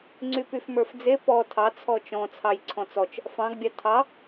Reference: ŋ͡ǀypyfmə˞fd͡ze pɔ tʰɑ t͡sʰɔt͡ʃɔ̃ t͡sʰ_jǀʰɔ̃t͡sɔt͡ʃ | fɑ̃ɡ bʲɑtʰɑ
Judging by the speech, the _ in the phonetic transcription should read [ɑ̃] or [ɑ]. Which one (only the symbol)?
ɑ